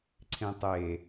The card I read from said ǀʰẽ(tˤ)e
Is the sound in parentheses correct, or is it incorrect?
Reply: correct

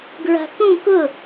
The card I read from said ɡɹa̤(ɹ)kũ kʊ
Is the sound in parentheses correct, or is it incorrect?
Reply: incorrect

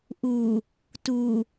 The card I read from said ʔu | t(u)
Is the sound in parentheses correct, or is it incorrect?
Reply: correct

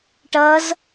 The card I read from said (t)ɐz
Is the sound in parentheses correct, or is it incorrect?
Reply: incorrect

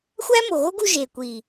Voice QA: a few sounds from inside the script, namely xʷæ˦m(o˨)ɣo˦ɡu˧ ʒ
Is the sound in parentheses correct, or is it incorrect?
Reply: correct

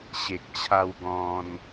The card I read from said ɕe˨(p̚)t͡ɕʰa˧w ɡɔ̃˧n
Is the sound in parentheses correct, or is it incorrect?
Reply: incorrect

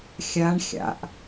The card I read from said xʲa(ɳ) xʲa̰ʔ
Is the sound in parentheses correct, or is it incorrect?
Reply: correct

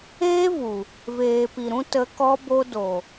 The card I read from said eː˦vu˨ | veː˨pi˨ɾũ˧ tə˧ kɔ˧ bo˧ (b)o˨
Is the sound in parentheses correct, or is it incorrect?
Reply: incorrect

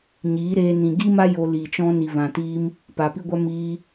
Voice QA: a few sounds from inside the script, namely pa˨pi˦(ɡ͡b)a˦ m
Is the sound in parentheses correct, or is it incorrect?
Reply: incorrect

